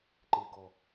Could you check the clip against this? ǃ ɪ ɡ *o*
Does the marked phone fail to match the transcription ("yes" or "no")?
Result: yes